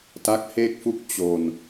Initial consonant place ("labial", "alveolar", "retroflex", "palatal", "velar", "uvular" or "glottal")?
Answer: alveolar